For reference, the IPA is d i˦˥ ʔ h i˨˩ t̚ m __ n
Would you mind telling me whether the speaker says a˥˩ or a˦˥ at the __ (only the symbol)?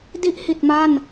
a˥˩